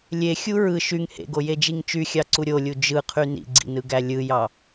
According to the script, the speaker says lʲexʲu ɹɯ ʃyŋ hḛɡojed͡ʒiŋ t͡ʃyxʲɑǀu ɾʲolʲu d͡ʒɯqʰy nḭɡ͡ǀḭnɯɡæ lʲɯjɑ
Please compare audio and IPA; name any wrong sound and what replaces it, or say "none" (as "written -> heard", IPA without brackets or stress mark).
none